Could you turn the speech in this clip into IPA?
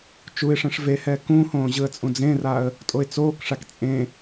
t͡ʃuɪ̯ʂɛ̃ʂ vehɛː kũhõː ʑɯə̯t͡sʼũd͡zẽraːə̯ | tʼoɪ̯t͡soːkʂak t͡sʼẽ

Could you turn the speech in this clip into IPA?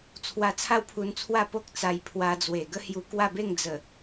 t͡sʰwa˧t͡sʰa˥˧wpʰu˧nt͡sʰwa˥˧ po˦k̚ t͡sa˧jpʰwa˧d͡zwe˨˩ ɡə˦hju˧kwa˥˧be˥˧ŋ d͡zə˨˩

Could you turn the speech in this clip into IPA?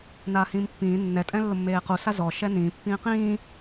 naːhĩːmpːĩː nːɛ tʼɛ̃lːʊmːeːqu sazɔ ʃɛnĩː pːĩːqĩː

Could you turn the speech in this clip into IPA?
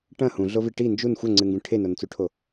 ʈɐ̃ hũɮovi ʈi nd͡ʒun xʷɐŋ͡ǀɨŋɡũ ʈʰenont͡suʈʰo

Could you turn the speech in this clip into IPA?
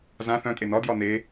zã θœ̃ tʼenɒ djɒne

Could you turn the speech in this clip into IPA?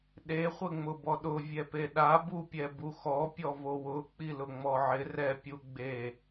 ɗe χʷɪŋ͡mʊbɔɗʊ vʲɛpeɗa bupʲɛbuxɔ pʲɔvowʊ k͡pilʊŋ͡mɔʕɪ rɛ pʲuɡ͡be

